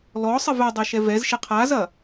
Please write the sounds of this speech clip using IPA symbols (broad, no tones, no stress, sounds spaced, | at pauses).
l ɔ sˤ ɘ v ɛ dˤ ɛ ʃ ɛ v ɛ z ʃ e qʰ a z ɐ